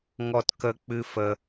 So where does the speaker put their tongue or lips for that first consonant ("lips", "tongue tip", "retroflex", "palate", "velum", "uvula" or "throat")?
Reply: velum